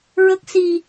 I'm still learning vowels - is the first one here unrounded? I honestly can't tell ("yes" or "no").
yes